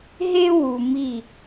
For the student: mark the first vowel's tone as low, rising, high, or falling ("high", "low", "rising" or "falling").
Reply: high